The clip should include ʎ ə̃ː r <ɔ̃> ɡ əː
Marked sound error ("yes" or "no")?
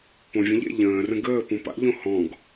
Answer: yes